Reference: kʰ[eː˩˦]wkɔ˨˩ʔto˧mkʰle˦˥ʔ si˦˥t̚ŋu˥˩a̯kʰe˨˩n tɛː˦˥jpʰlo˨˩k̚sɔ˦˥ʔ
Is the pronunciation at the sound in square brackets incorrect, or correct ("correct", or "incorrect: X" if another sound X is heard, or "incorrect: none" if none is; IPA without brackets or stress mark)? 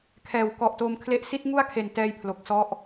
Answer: incorrect: ɛː˩˦